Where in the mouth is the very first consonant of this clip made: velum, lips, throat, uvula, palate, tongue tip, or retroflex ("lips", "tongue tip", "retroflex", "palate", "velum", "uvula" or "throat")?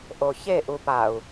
throat